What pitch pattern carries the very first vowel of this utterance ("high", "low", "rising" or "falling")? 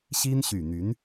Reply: high